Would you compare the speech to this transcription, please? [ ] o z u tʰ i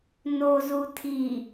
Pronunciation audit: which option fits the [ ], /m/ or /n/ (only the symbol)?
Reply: n